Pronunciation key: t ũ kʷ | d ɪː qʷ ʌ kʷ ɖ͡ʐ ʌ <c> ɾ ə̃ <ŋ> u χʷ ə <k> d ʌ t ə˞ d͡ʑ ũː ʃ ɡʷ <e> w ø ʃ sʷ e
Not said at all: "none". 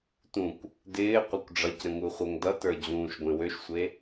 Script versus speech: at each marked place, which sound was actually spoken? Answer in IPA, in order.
c, ŋ, ŋ, ẽ

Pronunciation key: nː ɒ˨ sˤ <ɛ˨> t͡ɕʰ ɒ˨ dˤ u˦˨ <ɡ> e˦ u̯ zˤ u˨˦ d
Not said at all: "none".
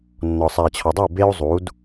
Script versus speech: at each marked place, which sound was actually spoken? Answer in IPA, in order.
æ˨, b

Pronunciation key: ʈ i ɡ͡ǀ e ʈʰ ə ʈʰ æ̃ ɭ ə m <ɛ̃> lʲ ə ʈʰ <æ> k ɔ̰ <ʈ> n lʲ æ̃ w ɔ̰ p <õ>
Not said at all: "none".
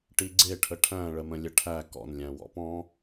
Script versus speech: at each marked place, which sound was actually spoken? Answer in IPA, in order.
ə̃, æ, none, ɔ̃

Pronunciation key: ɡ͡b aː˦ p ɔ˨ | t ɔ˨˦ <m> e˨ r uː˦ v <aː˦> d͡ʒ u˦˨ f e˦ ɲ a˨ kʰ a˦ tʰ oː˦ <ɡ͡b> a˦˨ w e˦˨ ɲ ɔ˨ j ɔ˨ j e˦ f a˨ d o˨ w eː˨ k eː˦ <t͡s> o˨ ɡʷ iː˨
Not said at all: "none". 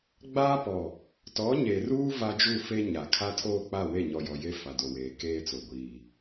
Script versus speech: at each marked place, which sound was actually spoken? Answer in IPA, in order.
ɲ, a˦, k͡p, t͡s

